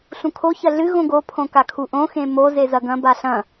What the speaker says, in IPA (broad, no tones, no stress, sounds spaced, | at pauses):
ɬ ũ kʰ o ç ɐ ɮ ɨ ɣ õ ɡ o pʰ õ k a kʰ u ʔ õ x ẽ m o z e z ɐ ɡ ɐ̃ b a ɬ ɐ̃